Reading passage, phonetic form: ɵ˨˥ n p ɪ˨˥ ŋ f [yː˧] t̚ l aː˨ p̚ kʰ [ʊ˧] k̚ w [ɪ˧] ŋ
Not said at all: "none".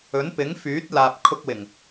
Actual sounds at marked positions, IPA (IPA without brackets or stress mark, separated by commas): yː˨˥, ʊ˧, ɪ˨˩